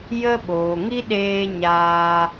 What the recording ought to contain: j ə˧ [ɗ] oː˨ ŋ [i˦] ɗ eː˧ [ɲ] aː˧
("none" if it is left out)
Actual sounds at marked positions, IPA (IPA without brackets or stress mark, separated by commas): ɓ, i˦, ɲ